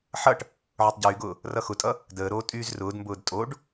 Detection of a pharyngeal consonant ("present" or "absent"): present